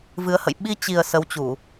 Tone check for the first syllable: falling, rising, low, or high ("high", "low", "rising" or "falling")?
rising